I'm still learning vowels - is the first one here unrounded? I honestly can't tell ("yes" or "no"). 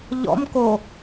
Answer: no